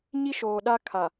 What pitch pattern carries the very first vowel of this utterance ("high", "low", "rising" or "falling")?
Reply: high